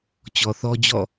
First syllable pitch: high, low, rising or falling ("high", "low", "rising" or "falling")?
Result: low